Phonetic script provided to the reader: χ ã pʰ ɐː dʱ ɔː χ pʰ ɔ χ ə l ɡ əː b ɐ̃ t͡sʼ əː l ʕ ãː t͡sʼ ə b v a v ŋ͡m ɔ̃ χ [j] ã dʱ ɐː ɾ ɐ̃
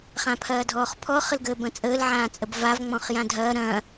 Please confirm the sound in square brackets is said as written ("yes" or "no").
yes